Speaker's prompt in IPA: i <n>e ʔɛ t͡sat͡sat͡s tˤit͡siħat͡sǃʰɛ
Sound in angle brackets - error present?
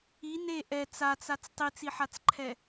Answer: no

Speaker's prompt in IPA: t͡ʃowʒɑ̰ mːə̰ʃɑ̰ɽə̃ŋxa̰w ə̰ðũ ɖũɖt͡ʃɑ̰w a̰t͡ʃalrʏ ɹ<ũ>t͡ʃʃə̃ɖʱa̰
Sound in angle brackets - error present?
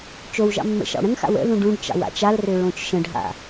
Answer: yes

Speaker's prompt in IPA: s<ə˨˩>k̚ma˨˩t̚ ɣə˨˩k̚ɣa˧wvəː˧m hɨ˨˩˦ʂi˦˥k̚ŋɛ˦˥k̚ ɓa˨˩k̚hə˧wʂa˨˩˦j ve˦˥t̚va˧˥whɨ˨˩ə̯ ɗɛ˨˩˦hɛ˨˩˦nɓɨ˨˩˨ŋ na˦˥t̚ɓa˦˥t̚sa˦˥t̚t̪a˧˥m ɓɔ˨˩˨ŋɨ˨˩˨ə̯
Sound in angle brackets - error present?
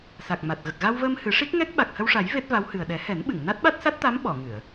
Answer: yes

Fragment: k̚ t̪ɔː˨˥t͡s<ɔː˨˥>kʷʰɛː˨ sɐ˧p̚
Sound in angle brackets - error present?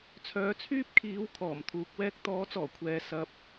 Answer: yes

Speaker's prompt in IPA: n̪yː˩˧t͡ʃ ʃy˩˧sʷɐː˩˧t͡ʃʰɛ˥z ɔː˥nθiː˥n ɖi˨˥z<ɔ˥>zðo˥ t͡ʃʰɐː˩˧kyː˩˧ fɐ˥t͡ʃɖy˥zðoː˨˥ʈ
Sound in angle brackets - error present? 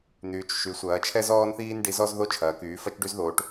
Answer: no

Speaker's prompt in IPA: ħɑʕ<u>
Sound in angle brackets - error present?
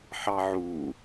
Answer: no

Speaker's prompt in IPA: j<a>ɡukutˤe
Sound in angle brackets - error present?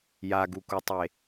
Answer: no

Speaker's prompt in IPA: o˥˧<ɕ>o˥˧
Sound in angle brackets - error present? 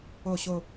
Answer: no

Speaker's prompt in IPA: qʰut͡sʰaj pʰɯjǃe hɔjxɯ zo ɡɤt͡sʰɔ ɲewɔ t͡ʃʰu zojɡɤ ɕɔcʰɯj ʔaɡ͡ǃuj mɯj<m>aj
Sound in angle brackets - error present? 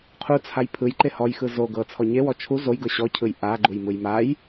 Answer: no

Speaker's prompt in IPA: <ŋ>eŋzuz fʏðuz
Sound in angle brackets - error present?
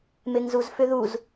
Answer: yes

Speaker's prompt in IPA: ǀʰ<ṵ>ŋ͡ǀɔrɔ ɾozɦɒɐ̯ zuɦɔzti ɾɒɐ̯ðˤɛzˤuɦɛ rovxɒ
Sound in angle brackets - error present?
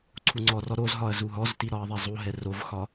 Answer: yes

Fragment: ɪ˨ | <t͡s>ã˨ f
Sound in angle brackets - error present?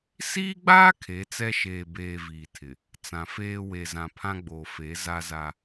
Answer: no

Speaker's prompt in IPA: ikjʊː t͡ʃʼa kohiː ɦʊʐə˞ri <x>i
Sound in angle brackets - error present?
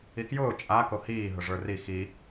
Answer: no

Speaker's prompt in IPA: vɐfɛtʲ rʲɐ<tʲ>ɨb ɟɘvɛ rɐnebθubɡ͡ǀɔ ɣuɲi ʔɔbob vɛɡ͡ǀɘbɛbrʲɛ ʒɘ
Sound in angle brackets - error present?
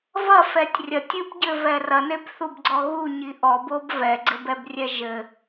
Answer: no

